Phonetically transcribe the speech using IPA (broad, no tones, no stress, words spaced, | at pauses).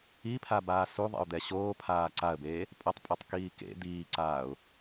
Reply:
ipʰabaː suðˤḛʊ̯d̪ɛ ɕoːpʰaː ǀaə̯beː | pʼʌtˤpʼotˤkiː kḛ d̪iːǀaːʊ̯